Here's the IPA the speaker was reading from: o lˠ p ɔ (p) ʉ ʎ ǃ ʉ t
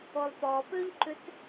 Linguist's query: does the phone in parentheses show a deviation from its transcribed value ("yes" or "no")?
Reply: no